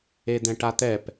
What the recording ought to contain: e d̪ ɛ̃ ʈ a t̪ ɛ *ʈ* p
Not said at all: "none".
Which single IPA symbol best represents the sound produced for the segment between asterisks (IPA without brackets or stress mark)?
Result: none